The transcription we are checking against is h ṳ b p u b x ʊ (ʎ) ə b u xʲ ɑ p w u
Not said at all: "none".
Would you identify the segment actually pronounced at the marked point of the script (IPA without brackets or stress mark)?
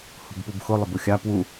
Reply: lˠ